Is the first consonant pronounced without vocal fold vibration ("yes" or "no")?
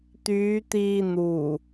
yes